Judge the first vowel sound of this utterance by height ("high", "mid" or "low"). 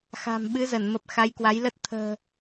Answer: low